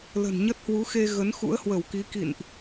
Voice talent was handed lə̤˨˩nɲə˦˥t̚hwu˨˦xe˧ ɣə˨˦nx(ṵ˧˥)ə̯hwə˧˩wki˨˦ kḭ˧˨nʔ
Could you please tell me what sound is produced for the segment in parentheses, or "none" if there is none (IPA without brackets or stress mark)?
ṵ˧˥